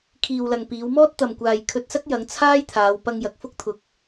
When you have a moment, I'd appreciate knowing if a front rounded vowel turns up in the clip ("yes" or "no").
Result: no